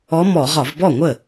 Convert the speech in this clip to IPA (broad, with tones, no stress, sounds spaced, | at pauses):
ɔ˧˥ m ɔ˧˩˧ ʁ ɒ˧˩˧ v b ɔ˥˩ ŋʷ ə˥˩